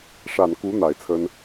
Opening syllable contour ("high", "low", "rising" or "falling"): low